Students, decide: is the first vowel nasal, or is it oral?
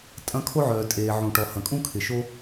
nasal